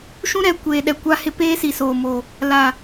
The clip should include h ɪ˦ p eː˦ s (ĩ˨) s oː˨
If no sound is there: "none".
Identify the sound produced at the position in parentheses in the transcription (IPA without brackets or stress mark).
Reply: i˨